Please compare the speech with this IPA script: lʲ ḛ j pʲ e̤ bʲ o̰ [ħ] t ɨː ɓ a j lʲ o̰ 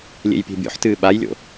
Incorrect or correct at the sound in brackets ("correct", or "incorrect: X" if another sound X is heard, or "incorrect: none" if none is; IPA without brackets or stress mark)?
correct